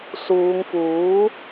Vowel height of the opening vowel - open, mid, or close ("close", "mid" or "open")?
close